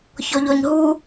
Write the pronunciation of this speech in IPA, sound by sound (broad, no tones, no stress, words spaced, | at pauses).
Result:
çɔʎɔɲɦu